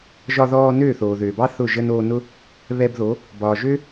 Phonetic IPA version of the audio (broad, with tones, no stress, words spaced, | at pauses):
ʒɒ˧ðɔː˧ nøː˦˨θoː˨ðøː˨bɑ˦ θʊ˦˨ʒə˦n oː˧nʊ˦ | βɛ˧bðo˨˦ | bɒː˨ʒø˦